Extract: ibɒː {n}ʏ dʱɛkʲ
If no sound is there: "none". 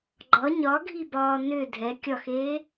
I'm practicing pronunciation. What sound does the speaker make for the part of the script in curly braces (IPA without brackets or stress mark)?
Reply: n